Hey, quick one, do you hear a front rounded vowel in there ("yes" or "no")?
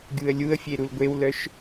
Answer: yes